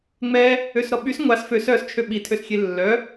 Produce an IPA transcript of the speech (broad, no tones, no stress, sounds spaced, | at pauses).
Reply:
ŋ͡m ɛ | ø s ɾ ɔ ɓ y s ŋʷ a s f ø s œ s t͡ʃʰ ø ɓ i tʰ ø s xʲ e lː œ